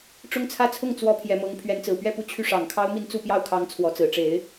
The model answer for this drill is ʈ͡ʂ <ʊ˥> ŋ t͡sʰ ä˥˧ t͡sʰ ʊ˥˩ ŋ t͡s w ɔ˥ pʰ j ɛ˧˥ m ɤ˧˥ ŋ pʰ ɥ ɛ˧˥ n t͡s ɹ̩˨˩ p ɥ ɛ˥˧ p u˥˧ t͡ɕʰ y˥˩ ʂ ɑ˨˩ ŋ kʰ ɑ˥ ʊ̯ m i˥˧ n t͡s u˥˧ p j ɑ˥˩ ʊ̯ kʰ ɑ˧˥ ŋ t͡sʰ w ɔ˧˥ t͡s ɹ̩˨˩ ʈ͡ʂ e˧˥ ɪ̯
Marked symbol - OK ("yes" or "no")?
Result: no